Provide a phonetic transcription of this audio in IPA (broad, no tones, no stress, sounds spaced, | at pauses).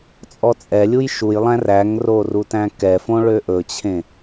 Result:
t͡sʼ ɔ t͡sʼ ɛ lʲ u j ʃ u j lˠ æ̃ r æ ŋ r o r u t æ̃ k ɛ f õ ɭ ø ʔ ɵ t͡ɕʰ ẽ